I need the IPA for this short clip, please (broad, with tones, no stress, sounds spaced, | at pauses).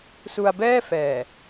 s u˧ a̯ b ɛː˥˩ f ɛː˨˩